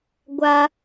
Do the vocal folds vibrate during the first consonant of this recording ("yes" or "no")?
yes